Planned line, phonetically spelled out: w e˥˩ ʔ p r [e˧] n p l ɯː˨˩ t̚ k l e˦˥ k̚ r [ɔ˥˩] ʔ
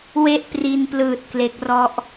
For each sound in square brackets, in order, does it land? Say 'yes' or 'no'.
no, yes

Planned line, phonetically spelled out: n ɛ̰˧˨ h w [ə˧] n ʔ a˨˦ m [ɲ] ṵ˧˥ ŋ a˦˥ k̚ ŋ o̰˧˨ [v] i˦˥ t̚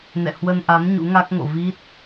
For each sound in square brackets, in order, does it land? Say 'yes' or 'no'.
yes, yes, yes

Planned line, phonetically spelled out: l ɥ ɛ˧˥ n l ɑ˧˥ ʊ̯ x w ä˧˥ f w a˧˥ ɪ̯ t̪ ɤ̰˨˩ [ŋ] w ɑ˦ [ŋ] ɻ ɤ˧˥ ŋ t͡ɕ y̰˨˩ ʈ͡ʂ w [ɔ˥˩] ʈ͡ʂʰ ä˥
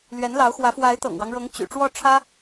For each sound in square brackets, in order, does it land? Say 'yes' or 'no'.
yes, yes, yes

